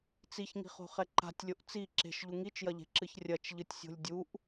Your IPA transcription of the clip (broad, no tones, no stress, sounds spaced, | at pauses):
t͡s i ç ŋ i̤ χ o̤ χ ɛ ǃ a̤ tʲ lʲ o ʔ t͡s i ǁ e̤ ʃ ʎ u ŋ i t͡ʃ j ɐ ʎ e̤ ǁ ɨ ç rʲ ɐ t͡ʃ ʎ ɨ tʲ sʲ o̤ lʲ dʲ u ʔ